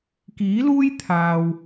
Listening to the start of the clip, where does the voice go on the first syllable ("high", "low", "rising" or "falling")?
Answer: rising